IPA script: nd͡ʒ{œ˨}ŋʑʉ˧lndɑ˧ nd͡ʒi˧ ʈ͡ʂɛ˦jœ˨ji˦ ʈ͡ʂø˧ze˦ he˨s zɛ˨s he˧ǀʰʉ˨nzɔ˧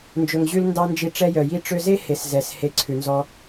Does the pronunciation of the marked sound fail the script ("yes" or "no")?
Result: yes